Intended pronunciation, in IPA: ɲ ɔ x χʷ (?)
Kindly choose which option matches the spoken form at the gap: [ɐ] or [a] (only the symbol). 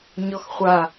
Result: a